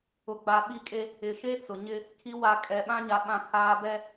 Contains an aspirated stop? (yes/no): yes